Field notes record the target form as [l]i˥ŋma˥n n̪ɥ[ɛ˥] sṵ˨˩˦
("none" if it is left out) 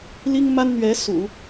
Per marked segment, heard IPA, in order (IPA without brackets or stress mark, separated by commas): l, ɛ˧˥